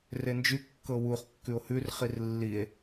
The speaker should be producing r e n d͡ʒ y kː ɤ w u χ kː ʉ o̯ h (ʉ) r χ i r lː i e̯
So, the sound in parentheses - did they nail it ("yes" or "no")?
yes